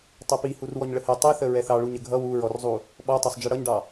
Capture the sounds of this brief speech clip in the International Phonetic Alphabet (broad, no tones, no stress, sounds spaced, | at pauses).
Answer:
tˤ ʌ p i h u r w ɔ ɲ ɭ ə h ɛ tˤ i θ ə ɹ ɛ θ ɑ ɭ u ɲ ə ɡʱ ʌ w u ɹ ɔ r zˤ u | ɓ ɔ tˤ ɑ sˤ d͡ʒ i ɽ ʌ ɲ ɖ ɑ